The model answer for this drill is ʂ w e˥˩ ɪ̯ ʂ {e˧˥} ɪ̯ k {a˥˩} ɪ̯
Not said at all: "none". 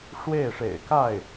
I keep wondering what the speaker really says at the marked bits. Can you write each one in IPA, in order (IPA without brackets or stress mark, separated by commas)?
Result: ḛ˨˩, a˥˩